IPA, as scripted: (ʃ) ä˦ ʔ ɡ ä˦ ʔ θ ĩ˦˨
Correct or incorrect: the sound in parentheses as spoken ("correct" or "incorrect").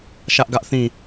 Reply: correct